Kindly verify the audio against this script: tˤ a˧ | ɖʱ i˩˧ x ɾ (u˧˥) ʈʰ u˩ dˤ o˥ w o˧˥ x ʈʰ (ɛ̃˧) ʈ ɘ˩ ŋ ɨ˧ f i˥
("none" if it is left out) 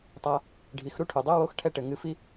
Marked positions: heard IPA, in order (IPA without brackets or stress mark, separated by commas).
u˥, ɛ˧